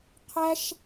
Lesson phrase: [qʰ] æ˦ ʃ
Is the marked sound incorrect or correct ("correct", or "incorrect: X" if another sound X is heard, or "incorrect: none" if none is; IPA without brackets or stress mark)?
correct